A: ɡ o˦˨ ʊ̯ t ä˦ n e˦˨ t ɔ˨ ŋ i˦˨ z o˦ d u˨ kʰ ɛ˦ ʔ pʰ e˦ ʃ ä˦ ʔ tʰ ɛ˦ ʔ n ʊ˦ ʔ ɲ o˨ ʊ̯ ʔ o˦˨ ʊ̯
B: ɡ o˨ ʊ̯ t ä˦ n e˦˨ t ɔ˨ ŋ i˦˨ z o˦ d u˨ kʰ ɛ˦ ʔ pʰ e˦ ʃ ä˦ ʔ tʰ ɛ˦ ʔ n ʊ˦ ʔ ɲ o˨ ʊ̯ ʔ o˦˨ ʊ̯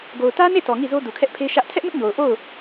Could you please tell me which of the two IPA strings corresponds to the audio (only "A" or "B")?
B